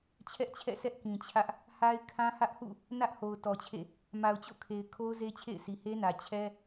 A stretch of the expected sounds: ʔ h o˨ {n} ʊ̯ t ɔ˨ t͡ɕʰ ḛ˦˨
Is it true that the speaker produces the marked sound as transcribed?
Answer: no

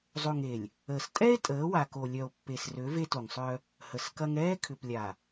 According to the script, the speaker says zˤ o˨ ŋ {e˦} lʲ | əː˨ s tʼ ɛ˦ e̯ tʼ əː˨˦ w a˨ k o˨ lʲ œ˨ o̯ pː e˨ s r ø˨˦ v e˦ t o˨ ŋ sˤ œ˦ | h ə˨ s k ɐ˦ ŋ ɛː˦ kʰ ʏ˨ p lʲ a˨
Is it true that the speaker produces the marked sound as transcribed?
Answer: no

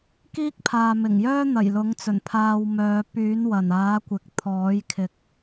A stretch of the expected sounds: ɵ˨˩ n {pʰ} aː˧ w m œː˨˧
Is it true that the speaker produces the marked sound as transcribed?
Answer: yes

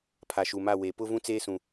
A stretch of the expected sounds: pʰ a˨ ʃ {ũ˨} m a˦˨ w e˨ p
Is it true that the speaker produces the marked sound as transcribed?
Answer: no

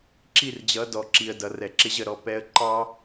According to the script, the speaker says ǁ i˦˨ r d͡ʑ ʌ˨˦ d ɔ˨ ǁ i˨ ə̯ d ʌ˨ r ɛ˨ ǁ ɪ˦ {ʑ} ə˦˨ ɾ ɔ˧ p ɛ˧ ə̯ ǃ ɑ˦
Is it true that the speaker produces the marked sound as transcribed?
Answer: yes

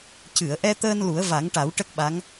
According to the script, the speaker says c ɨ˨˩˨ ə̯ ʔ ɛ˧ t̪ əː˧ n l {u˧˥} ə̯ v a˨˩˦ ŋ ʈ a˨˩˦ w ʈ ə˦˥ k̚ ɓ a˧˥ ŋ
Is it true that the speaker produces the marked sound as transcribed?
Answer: no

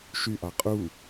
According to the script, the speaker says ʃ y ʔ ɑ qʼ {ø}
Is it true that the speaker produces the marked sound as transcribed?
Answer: no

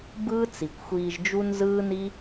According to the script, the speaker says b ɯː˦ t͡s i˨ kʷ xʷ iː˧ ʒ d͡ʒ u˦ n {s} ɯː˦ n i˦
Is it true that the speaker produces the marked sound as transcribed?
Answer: no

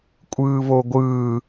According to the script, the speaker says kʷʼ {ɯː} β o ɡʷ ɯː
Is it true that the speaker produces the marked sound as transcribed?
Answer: yes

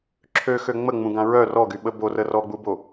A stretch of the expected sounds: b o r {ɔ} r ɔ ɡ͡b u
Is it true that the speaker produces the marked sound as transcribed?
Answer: no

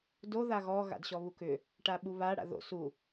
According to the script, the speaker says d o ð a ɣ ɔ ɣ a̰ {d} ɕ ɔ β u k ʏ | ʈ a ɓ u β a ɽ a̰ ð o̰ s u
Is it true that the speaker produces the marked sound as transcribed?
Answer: yes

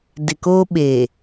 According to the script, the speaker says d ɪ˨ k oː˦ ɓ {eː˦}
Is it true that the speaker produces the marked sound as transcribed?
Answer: no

